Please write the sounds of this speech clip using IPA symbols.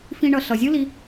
f ĩ˧ ɳ ʌ˨ ɬ ʌ˨ zʲ ɯ˦ l i˧

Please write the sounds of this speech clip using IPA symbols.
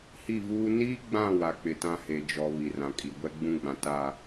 h i˦˨ v uː˦ n iː˦ ɡ͡b ã˦˨ w a˨ k͡p ɪ˨ t ã˦ h e˨ d͡ʒ ɔ˨ β i˨ r ã˨ kʼ i˨ ɡʷ ɛ˦ ɡ͡b ũ˦ ɡ͡b ã˨ t a˦˨

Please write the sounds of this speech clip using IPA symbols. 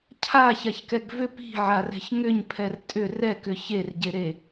cʰ a ç a ç k ɛ ɡ v ʏ p i̤ ʕ a r ɛ̤ ç ŋ ʏ ɲ pʰ ɛ r tʼ ʏ r ɛ k ʏ ç e r ɟ e ɾ e

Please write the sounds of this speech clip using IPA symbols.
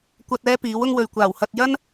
kʷ ɐ˧ t̚ ɛː˥ p iː˨˥ w ʊ˥ ŋ w ɵ˨ ɥ kʷ aː˨˩ w h ɐ˧ t̚ j ɐ˥ n

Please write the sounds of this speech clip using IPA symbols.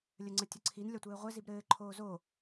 lʲ ə ŋ͡ǀ ə tʲ ə ǀʰ i n lʲ ɒ tʷ ɘː ʁʷ ɘ z i b ɾ ɘː ǃʰ oː z o

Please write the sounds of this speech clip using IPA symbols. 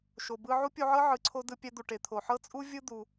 ʃ o˩ b ɯ˧ ʕ u˥ pʲ u˧ ʕ ɤ˥ ʕ ɯ˩ ǀʰ o˧ d ɯ˧ pʲ ɛ˧ d̪ u˩ ʈ e˩ t̪ʰ o˩ ħ ɤ˥ t͡sʼ u˥ vʲ ɯ˥ d̪ u˩

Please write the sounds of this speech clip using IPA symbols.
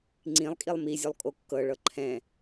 ŋ͡ǀ ĩ lˠ kʼ i lˠ m i zʲ o lˠ kʼ o kː ɤ ɭ ɤ ǃʰ ɛ̃

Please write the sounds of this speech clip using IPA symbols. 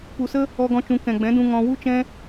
p u˨ s ə˦ | ɔ˧ ɡ ɔ̃˧ t͡ʃ ũ˨ k ɛ̃˨ ɡ͡b ɛ̃˨˦ d ũ˧ ŋ ɔ̃˧ w u˦ t͡ʃ ɛ̃˦

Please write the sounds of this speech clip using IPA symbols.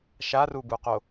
ʃ a r u b u q o

